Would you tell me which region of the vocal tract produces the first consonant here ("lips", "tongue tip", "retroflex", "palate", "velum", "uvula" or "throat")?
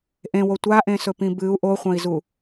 throat